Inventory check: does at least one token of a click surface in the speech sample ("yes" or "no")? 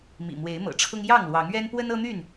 no